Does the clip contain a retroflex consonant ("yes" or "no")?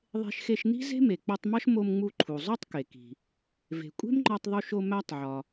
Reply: no